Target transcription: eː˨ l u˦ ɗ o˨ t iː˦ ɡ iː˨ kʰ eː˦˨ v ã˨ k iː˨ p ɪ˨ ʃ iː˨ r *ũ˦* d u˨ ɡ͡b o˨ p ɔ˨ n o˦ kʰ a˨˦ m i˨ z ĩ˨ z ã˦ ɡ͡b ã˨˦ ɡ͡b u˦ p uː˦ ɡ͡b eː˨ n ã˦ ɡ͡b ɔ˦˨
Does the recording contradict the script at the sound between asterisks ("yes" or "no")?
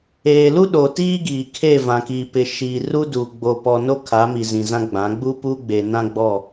yes